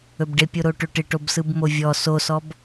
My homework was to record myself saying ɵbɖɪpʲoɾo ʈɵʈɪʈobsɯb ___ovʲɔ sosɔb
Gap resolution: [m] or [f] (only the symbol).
m